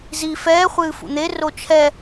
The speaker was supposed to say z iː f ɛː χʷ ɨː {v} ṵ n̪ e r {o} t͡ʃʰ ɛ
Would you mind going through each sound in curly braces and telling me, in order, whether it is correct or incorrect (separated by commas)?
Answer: incorrect, correct